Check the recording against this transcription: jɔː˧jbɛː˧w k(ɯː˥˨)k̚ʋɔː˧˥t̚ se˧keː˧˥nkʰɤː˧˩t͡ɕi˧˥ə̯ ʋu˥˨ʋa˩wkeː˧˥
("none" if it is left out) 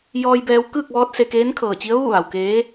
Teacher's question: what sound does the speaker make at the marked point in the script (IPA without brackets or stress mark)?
ɯː˥˨